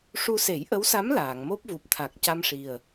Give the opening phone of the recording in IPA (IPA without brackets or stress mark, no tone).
ʂ